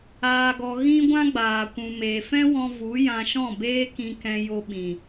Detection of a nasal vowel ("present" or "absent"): present